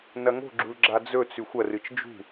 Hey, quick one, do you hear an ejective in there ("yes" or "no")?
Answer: no